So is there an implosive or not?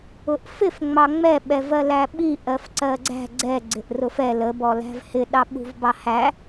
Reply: yes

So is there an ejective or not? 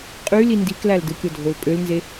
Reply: yes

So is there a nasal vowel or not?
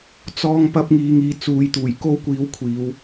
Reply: no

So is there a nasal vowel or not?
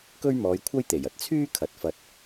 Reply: no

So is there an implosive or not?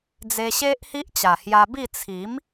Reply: no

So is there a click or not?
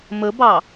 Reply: no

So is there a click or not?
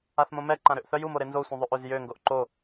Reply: yes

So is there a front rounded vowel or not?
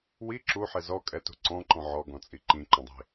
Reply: no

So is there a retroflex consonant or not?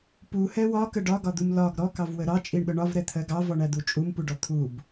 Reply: yes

